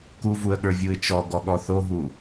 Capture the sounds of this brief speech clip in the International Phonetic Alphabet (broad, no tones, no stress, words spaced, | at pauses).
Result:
kuvuə̯ɠə˞ vʲuɪ̯t͡ʃɔɡɔɠɔ θoɦu